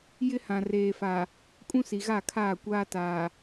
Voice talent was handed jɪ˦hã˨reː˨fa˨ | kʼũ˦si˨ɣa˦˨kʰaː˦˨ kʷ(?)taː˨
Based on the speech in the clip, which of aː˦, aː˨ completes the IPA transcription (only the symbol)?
aː˦